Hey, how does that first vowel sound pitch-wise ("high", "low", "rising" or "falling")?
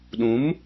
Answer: rising